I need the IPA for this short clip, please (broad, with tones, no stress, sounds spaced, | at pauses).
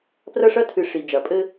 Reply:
p r ɐ˦ ʂ ɐ˦ tʰ ɨ˨˦ ʂ i˨ d͡ʒ ɐ˨ pʼ ɘ˦